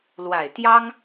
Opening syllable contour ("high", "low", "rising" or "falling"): low